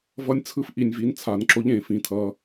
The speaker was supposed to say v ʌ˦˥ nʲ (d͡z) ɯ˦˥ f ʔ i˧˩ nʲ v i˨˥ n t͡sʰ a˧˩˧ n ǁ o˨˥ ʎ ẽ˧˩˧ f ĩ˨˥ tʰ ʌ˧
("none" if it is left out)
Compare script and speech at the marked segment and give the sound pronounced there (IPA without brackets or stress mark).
t͡sʰ